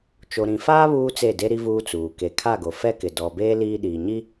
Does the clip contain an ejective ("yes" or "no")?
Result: no